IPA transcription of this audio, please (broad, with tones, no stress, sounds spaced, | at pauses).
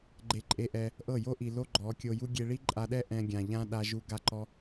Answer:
ɡ͡ǃ e˧ ǃʼ e˧ ʔ ɛ˧ | ʔ ɤ˦˨ j o˦ ʔ i˨ l o˦ ɡ͡ǃ ɔ˨˦ kʲ o˧ j u˦ ɡʲ e˧ ɭ i˦ ǃʼ a˧ ɗ ɛ˦ ʔ ɛ̃˧ ɡʲ ã˨ ʎ ã˦ ɗ a˧ ʒ u˧ ɡ a˦ ǃ ɔ˦